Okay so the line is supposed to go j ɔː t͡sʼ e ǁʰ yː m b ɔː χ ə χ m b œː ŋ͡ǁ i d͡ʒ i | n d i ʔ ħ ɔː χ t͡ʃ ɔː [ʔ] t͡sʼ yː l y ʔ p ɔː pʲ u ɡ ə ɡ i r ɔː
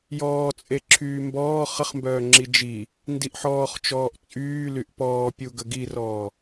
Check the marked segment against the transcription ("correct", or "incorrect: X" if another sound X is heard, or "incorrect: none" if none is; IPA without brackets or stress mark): correct